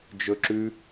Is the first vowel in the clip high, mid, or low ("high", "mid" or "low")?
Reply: mid